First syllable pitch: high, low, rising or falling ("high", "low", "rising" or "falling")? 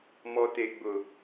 high